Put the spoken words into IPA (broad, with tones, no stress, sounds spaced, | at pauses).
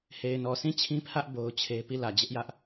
h e˨ ɪ̯ n ɔ˨ sʰ ĩ˦˨ t͡ɕʰ ĩ˦ pʰ ä˦ ʔ b o˦ ʊ̯ t͡ɕʰ e˦ p i˦˨ l ä˨ d͡ʑ ɪ˦ ʔ j ä˦ ʔ